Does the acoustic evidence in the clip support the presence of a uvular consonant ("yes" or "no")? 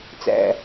no